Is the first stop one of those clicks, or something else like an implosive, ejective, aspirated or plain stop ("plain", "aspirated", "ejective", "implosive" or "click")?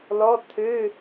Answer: aspirated